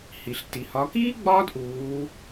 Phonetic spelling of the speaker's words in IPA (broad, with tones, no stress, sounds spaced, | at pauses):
h i˩ ɬ t i˩ h ɒ˩˧ k iː˥ ɡ͡b ɒː˥ d ʔ uː˩˧